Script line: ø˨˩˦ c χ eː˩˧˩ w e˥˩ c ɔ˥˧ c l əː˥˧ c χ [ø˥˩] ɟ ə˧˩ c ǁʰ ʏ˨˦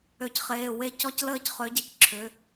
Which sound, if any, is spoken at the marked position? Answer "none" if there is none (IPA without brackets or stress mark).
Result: ø˨˦